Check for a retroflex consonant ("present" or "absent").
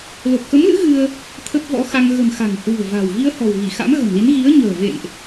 absent